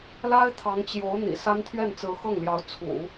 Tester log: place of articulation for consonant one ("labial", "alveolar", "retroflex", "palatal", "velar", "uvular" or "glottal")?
alveolar